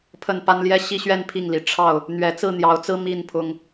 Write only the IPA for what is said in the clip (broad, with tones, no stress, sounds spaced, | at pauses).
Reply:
pʰ ə˨˩ n p a˦ n l j ɛ˦ ɕ i˦ ɕ ɥ ɛ˥˨ n pʰ i˥˨ ŋ l i˨˩ ʈ͡ʂʰ ɑ˥˨ ʊ̯ | n̪ ɥ ɛ˨˦ t͡s ɹ̩˥˨ n̪ j ɑ˨˦ ʊ̯ t͡s ɹ̩˦ m i˥˨ n pʰ ʊ˦ ŋ